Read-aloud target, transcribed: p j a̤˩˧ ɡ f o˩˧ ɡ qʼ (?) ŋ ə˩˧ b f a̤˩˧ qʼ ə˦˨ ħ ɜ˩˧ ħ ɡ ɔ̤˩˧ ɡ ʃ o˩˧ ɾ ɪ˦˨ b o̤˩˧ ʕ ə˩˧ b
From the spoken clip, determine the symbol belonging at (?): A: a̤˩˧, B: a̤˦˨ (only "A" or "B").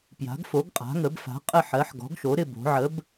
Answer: A